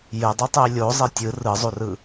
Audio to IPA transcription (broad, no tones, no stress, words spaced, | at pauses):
jɘdˤutˤei̯ lʲozˤe tʲɯ rɯzˤurɯ